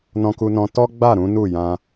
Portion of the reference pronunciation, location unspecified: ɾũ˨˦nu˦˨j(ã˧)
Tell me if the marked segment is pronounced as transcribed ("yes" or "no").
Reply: yes